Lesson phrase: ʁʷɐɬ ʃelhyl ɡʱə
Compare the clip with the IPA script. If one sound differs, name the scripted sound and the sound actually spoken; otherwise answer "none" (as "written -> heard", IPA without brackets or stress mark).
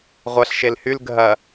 ə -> ɐ